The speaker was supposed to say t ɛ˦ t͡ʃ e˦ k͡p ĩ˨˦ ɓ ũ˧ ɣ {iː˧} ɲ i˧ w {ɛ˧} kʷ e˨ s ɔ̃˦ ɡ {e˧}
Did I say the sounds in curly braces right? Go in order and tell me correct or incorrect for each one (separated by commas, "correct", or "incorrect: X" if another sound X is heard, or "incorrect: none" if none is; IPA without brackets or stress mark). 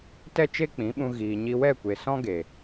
incorrect: iː˨, incorrect: ɛ˦˨, incorrect: e˨